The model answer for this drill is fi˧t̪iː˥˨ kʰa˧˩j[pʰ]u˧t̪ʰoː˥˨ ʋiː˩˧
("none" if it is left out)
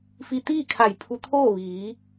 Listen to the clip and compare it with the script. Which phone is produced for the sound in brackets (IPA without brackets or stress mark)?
pʰ